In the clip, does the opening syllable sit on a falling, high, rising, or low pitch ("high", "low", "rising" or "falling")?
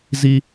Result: high